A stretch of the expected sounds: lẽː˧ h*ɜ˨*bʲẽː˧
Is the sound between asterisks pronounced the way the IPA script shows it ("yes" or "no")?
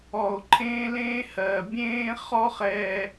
yes